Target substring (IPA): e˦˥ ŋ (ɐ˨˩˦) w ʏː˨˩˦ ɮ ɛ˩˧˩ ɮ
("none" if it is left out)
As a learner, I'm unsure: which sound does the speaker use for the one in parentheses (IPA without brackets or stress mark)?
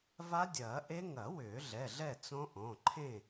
ɐ˨˩˦